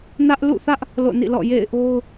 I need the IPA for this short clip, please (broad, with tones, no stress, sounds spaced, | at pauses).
n ä˦ ʔ l ṵ˦˨ θ ä˦ ʔ | l o̰˦˨ n ḭ˦˨ l ɔ̰˦˨ j ḛ˦˨ ɪ̯ ʔ o˦ ʊ̯